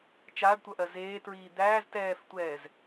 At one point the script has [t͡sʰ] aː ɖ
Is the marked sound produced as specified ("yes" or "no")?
no